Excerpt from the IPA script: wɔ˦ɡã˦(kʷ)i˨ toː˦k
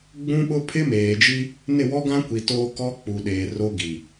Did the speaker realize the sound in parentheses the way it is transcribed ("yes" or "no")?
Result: yes